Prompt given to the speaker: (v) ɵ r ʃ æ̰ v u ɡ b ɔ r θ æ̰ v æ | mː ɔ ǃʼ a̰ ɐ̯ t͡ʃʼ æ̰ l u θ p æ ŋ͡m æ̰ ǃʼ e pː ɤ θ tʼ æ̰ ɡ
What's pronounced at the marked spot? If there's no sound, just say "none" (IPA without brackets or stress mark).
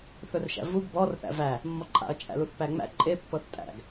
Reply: θ